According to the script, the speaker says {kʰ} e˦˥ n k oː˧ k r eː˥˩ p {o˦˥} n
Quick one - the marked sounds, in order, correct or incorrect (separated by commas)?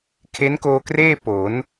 correct, incorrect